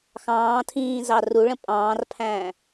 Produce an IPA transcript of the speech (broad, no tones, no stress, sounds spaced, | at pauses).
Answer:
x ɑ̃ː tʰ ĩː z ɑ r u ɭ ə̃ pʼ ɑ̃ː r pʰ æ̃ː